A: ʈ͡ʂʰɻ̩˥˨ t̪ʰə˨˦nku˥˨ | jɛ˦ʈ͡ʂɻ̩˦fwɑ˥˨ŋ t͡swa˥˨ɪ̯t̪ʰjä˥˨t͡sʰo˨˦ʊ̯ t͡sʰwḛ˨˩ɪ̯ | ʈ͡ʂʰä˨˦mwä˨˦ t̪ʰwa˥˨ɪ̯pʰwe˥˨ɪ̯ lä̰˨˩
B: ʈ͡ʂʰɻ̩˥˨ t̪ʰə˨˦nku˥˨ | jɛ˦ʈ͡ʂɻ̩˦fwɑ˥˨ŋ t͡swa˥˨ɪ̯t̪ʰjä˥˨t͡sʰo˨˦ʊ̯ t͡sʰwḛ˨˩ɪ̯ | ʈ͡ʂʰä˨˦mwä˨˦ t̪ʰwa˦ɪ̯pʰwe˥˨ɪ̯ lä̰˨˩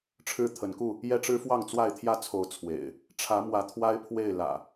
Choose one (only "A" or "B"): B